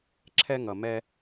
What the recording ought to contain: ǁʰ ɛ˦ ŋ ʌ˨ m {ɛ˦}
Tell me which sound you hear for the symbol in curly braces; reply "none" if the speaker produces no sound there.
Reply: ɛ˦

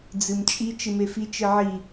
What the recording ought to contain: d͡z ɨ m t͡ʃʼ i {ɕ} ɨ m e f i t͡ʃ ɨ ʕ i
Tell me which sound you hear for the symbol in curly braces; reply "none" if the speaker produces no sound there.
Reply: t͡ʃ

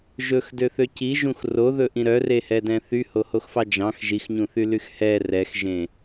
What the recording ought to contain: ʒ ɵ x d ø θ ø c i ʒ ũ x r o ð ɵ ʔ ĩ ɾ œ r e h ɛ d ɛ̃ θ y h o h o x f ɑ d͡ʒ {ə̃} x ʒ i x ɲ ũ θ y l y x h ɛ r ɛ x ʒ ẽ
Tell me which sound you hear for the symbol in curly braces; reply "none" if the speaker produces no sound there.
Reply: ɑ̃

